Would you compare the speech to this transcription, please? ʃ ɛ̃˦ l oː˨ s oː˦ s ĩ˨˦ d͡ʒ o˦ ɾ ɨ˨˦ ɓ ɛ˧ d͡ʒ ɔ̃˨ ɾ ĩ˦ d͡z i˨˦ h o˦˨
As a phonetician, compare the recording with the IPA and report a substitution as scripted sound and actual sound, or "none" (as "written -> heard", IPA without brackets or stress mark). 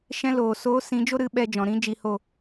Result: d͡z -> d͡ʒ